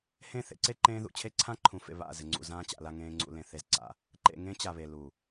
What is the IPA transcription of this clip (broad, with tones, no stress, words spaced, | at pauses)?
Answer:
hẽ˦˨θḛ˦ǀe˦ ǃẽː˦ðṵ˨ t͡ɕʰe˦ǀʰã˦ǃʰũ˨fḛ˨ βa̰˦˨ zɪ˨ŋ͡ǀṵ˨zãː˦t͡ɕa̰˨ la˨ŋẽː˨ ŋ͡ǀṵ˨lẽ˨ θe˦zǀa̰˦ | ǃḛ˨ ŋẽ˦t͡ɕa˨βe˨ lu˨